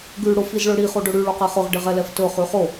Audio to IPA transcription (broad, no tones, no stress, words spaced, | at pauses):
ɡʉ ɽʊf izɭɵɽi χoɖɵɽʉ ɭoqɛχʊʁ ɖɪʁɛlɛftɵ χʉχo